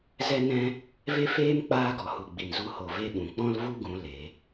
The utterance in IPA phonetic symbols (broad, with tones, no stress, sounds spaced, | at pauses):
z ɛ˦ n ɛ̃˦ | v e˦ f eː˦ m k͡p aː˦ ɡ ɔ˨ h u˨ ɡ͡b i˨ n z u˧ h o˨ v e˦ ɓ ũ˨ k͡p ɔ̃˦ l v u˦ ɡ ũ˨˦ l e˨˦